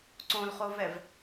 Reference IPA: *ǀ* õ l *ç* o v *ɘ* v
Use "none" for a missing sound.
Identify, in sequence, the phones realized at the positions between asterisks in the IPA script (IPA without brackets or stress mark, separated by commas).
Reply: ǀ, χ, ɛ